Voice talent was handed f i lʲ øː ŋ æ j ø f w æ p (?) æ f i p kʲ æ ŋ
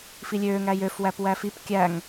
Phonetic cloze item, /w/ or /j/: w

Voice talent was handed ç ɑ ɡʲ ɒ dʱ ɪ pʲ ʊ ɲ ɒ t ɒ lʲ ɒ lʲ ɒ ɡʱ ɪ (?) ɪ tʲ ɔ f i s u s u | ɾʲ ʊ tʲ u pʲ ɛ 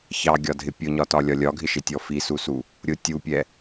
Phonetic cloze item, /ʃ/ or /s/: ʃ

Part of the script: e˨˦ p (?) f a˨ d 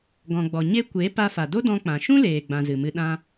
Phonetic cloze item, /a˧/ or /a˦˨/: a˧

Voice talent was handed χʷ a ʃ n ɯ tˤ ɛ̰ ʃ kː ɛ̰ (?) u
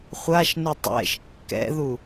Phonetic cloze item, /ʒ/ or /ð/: ð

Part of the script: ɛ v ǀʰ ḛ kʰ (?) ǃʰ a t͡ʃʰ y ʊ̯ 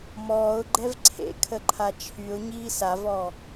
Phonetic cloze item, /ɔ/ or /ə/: ə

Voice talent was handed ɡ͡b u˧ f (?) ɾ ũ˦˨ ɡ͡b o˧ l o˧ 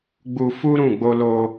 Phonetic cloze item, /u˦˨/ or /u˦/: u˦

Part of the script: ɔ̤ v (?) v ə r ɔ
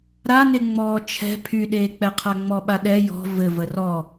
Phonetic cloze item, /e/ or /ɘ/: ɘ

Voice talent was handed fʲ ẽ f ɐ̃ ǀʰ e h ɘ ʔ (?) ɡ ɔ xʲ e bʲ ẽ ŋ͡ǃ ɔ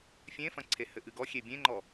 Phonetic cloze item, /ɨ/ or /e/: ɨ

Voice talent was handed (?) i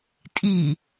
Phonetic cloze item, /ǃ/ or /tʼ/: tʼ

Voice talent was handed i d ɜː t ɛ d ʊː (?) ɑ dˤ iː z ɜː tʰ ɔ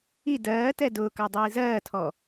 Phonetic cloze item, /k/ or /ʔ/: k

